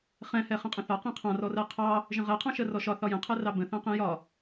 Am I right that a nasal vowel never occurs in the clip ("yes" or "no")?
no